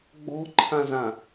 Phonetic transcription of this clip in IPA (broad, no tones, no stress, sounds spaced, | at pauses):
ɡ͡b ɔ̤ ǃʰ ã z ã